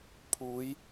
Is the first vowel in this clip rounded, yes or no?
yes